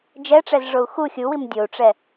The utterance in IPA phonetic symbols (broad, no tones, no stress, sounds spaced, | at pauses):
d͡ʒ ɛ ʈ͡ʂ ɛ z ʐ o u̯ x u xʲ u w i m dʲ o u̯ ʈ͡ʂ ɛ